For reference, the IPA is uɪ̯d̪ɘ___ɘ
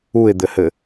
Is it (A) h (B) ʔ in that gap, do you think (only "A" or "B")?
A